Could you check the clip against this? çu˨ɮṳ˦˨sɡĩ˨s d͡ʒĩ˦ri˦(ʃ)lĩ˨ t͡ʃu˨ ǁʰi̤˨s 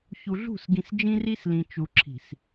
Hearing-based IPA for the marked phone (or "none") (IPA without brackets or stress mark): s